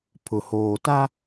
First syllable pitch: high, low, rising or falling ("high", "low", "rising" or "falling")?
low